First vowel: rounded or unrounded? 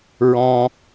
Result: rounded